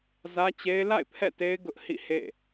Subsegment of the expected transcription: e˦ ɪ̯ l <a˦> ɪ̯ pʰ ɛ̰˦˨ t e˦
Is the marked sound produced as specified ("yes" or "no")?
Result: no